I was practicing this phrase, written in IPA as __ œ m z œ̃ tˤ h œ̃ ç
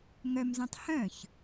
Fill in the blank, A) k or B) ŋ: B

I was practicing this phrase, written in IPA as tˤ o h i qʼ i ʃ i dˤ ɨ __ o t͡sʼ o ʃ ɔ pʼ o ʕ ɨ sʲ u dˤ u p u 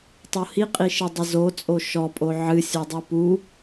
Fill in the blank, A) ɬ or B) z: B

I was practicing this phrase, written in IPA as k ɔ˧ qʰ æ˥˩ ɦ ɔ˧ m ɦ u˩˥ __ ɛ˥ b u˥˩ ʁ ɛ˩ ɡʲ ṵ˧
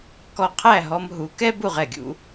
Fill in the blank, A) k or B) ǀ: A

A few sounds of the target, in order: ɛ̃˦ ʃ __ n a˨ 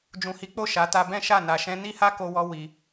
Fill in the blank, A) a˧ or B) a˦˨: B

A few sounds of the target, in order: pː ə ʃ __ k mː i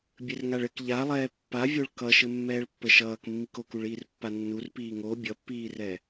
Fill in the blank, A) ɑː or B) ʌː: B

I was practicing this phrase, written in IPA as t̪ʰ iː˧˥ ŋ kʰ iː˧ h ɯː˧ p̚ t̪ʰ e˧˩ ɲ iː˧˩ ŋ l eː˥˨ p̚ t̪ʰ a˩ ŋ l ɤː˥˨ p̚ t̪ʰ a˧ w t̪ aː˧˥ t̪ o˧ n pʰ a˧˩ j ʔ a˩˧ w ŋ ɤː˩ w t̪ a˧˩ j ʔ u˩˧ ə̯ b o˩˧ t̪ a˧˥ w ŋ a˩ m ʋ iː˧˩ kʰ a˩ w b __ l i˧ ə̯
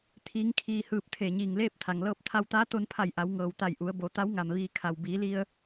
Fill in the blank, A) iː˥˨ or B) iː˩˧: B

